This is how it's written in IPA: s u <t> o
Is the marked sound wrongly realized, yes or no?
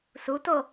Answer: no